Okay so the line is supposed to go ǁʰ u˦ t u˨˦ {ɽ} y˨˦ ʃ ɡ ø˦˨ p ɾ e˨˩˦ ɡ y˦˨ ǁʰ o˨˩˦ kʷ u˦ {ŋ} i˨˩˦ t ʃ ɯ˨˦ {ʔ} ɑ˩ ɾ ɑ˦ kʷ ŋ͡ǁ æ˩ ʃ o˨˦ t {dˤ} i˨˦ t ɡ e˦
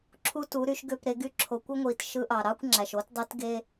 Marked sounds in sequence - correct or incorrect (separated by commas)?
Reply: incorrect, incorrect, correct, correct